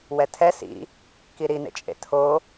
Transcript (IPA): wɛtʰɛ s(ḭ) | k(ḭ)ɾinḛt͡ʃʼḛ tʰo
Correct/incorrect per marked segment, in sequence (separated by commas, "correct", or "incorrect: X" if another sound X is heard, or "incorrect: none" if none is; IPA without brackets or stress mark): correct, incorrect: i